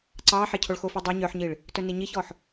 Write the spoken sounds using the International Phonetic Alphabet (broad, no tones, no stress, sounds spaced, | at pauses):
ǀ ɑ ħ e cʰ o ɭ x o f i dˤ o ɲ œ ħ ɲ i ɭ | t œ n i ɲ i ç ɔ ħ